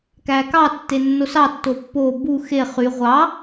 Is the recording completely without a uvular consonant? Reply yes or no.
no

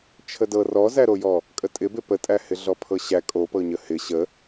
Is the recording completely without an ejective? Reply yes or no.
no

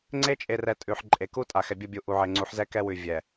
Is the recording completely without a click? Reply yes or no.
no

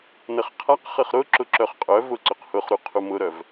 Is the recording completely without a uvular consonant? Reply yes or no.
no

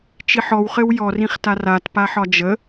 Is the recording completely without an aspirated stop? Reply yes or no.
yes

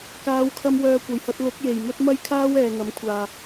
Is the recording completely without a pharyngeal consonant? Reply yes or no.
yes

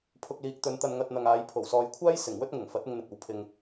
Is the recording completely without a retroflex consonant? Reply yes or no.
yes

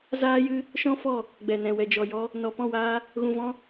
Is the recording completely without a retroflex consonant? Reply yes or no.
yes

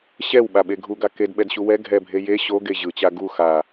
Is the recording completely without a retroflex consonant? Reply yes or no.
yes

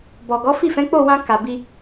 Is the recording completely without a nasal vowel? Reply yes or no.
no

